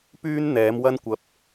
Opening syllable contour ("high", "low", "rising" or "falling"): high